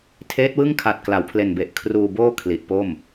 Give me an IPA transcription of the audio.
tʰ eː˦˥ t̚ w ɯ˥˩ ŋ kʰ a˨˩ t̚ k l a˩˦ w pʰ l e˨˩ n b e˨˩ ʔ kʰ r uː˧ b oː˥˩ kʰ l i˨˩ ʔ p o˥˩ m

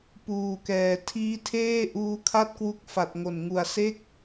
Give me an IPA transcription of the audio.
p uː˨˩ k ɛː˨˩ tʰ iː˦˥ tʰ eː˥˩ ʔ uː˦˥ kʰ a˥˩ t̚ k w u˦˥ k̚ f a˨˩ t̚ ŋ o˨˩ n ŋ u˨˩ a̯ s e˥˩ k̚

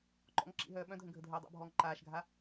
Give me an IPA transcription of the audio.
ǃ ɔ̰ ŋ ǁ ḭ ɦ œː ɓ œ̃ dʱ ə̃ ɡʱ ə dʱ œː dˤ a̰ bʱ ɔː ŋ ǃ aː ʃ ɡʱ a

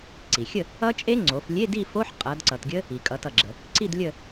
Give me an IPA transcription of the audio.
ǀ i˩ xʲ ə˥˨ | ʌ˦˥ t͡ʃʼ e˦˥ ŋ͡ǀ o˩˧ f lʲ e˧˥˧ d i˥˨ f o˧˥˧ ħ qʼ ʌ˩˧ d ǀ ʌ˩ t ɡʲ ə˦˥ | i˩ kʼ ʌ˩˧ t ʌ˩ ɡ͡ǁ ə˩ | ǀ i˥˨ d lʲ ə˥˨

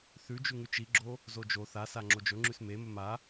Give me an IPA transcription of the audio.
θ ʉ d͡ʒ ʉ ŋ ʉ t͡ʃ i ɡ͡ǁ o | z o d͡ʒ o θ a s a ŋ͡ǁ o d͡ʒ ɵ ŋ͡ǁ ʉ s m e m ɵ m a

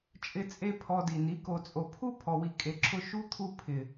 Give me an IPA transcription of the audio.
t͡ʃʼ ɪ˧ t͡sʼ e˧ pʰ ɔ˧ d i˨ n i˨˦ k o˨ t͡sʼ o˨ pʰ u˦ pʰ ɔ˨ w i˨ kʼ e˨ ǁʰ ʊ˧ ʃ u˦ t̪ʰ u˧ pʰ ɪ˨

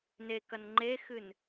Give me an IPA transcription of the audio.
n e k ɐ n ŋ͡ǃ e x ɨ n

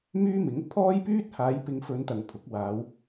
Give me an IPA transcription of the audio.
m yː˥ m ɪ˨˥ ŋ pʰ ɔː˥ j p yː˥ t̚ h aː˨˧ j p ɪ˨˧ ŋ f ɵ˨˧ n t̪ ɐ˨ ŋ pʰ ʊ˨˥ k̚ w aː˨˧ w

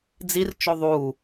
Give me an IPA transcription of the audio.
d͡z i r t͡ʃ o ðˤ u

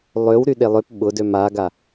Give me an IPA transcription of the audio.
lˠ ø w ɾ y ɗ e lˠ ø p ɓ ʊ d ø m a ɡ a

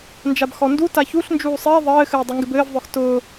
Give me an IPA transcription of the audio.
n d͡ʒ a b x ɔ n d u t a ç u ɬ n d͡ʒ uː sˤ ɪː ðˤ ɘː x ɘː dˤ u ŋ ɡ ɪ b ɘː v ðˤ œ x t ʊː

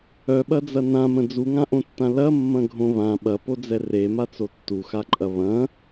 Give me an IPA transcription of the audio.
œ ɓ ɐ d͡z ɐ n ã m ə̃ d͡z u ŋ ã ʔ õ tː ã l ɐ mː ɐ̃ ɡʱ õ β ã ɓ ɐ p o d͡z ɛ r e m a t͡s o tː u x a ǃʼ ɐ β ɐ̃

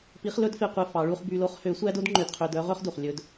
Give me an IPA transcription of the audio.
p i˧˥ χ l ɵ˥ d f e˧ qʷ e˧ f ɑ˩˧ ɭ u˧ χ b y˧ l o˥ χ h ø˧˥ sʷ æ˥ d o˥ d ŋ͡ǃ ø˧ d qʰ ø˧ d œ˥ ʁ ɵ˥ χ d u˩ χ lʲ ɵ˧ d

